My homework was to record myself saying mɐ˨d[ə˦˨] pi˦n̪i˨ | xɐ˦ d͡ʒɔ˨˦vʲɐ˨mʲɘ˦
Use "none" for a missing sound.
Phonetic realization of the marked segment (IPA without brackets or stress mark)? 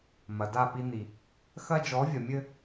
a˦˨